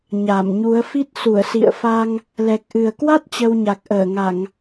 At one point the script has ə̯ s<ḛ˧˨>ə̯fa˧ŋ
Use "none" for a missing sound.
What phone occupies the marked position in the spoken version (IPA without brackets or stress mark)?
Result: ḭ˧˨